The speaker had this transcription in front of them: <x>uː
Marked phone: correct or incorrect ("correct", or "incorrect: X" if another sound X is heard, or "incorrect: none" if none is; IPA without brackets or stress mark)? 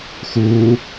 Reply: correct